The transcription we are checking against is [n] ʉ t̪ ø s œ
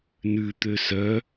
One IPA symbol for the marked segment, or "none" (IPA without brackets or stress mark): n